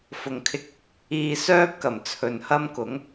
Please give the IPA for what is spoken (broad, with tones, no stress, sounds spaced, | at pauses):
f ʊ˨ ŋ kʰ ɪ˧ k̚ | iː˧ s œː˥ p̚ k ɐ˨˩ m t͡sʰ ɵ˨ n h ɐ˥ m k ʊ˨˥ ŋ